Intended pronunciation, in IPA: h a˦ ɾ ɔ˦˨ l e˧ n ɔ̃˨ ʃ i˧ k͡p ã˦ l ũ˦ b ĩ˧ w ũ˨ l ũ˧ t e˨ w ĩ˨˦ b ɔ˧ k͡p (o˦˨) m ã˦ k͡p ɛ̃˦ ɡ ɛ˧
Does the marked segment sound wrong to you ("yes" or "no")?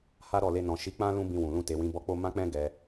yes